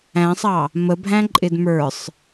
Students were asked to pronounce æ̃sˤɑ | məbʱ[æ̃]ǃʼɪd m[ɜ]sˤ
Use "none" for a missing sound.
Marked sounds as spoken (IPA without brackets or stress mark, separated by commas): æ̃, ə˞